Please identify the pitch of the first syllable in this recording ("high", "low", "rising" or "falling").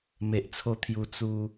low